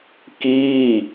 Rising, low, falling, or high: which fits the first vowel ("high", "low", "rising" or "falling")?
falling